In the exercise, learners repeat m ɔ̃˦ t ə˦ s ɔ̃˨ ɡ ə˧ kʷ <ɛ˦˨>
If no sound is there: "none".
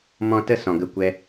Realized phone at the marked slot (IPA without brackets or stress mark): ɛ˧